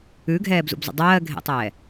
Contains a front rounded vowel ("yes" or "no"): no